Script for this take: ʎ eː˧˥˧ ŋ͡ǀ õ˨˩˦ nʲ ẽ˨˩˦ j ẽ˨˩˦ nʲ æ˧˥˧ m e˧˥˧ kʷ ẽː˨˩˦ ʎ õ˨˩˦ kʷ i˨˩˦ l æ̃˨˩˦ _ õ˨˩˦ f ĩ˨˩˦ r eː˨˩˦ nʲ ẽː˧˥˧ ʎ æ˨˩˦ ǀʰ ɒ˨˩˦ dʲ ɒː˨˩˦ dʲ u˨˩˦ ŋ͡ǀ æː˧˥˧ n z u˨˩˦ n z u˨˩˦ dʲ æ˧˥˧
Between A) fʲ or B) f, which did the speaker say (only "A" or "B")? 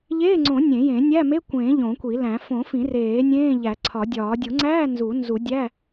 B